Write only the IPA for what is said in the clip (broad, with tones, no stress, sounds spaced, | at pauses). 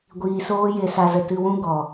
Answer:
ɡʷ iː˧ s oː˦ j e˧ s a˧ z ə˨ t ɨ˧ w ũ˦ ɡ ɔ˨